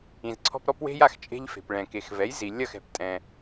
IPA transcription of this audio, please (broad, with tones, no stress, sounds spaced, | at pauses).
ĩ˩ z ǀʰ ɔ̤˧ p ɾ ɔ˥ p w e̤˥ j a˧ x t͡ʃʼ e̤˧ ʎ f e̤˩ p ɭ ɛ̃˩ k e˩ x v ɛ˩˥ j z i˩ lʲ ɐ˥˩ x ɛ̤˩ p tʼ ɛ̃˩